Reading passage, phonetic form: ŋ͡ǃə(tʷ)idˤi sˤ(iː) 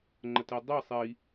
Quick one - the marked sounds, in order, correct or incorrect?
incorrect, incorrect

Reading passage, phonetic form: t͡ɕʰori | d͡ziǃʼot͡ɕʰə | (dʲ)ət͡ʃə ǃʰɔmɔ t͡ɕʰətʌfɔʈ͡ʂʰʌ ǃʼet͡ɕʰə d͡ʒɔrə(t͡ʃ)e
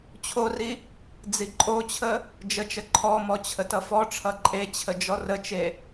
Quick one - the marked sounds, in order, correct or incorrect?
incorrect, correct

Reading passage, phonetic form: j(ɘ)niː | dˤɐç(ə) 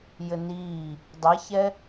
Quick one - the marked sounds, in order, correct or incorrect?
correct, incorrect

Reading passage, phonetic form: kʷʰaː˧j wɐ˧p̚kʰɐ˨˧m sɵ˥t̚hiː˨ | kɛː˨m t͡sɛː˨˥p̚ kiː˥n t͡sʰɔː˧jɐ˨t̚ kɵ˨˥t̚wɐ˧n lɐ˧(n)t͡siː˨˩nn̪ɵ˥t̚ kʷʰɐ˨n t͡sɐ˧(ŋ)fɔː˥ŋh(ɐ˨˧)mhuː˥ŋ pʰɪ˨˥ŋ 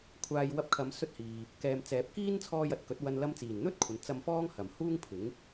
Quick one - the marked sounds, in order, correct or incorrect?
incorrect, incorrect, incorrect

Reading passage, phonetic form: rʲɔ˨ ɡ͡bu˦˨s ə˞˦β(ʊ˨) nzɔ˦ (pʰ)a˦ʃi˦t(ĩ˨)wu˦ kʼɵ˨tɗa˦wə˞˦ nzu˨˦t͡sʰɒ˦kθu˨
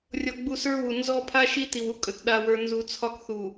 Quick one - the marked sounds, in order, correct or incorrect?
incorrect, correct, incorrect

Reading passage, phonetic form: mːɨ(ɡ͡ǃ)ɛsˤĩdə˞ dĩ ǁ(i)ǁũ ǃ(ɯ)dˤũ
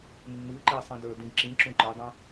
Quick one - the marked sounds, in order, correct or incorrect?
incorrect, incorrect, incorrect

